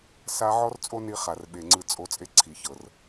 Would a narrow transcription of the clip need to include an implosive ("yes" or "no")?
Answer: yes